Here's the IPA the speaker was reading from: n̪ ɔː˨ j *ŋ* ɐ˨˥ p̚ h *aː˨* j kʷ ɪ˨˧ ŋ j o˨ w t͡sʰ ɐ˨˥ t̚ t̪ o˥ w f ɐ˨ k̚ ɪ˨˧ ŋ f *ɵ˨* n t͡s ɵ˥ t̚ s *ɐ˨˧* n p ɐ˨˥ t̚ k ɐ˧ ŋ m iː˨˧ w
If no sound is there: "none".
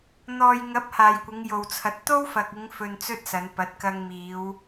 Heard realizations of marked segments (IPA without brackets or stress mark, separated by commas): ŋ, aː˨, ɵ˧, ɐ˨˧